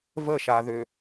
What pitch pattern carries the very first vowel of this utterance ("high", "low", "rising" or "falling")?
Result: falling